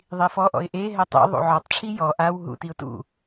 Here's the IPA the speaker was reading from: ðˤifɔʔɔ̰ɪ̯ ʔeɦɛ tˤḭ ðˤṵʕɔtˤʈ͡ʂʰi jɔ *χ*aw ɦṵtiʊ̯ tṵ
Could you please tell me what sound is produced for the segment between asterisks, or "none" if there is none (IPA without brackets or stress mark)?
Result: ʔ